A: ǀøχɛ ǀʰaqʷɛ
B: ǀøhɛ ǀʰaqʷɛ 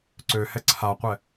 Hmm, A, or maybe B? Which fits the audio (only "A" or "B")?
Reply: B